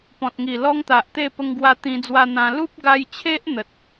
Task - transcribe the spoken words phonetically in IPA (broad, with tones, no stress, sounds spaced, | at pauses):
p ɔ̃˨ t̚ ŋ i˨˩ l ɔ˦ ŋ t̪ a˨ ʔ t̪ e˥˧ p ə˧ ŋ ɡ w a˧ t̪ ĩ˧ d͡z w a˧ n̪ ã˧ l u˦ p̚ ɡ a˧ j t͡ɕʰ e˦ ʔ n̪ ə˨ t̚